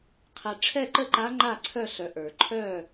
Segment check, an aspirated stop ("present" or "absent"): present